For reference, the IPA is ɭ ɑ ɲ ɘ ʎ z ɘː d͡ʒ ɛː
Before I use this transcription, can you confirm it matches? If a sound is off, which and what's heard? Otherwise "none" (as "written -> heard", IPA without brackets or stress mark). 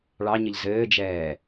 none